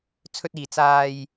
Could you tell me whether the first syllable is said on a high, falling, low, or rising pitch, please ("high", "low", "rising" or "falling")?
low